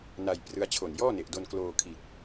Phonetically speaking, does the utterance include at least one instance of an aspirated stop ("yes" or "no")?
yes